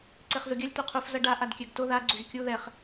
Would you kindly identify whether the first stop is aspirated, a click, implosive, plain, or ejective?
click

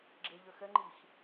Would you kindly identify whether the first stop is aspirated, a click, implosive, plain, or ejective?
click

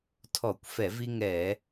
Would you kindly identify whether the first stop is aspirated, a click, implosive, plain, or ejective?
aspirated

